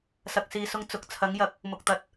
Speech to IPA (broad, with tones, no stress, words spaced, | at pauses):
sɐ˨k̚siː˨sʊ˧ŋ t͡sʊ˨˥k̚t͡sʰɐ˨˥ŋjɐ˨˥k̚ | mʊ˨k̚t̪ɐ˨˥t̚